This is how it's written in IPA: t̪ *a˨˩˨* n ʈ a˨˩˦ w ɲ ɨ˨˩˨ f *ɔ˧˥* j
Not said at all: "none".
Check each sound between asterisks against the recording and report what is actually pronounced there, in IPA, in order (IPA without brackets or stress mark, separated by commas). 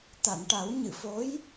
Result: a˨˩˨, o˧˥